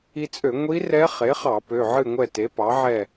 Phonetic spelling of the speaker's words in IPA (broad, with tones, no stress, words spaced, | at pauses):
i˧t͡sʼø˧˩˧ ŋʷi˧˥ rɛ˧˥ χe˩˥χɑ˧˩˧ pø˩˧˩ʕɨ˥˨ŋʷɛ˥˨ te˩˥pɑ˩˥ʕɛ˥˨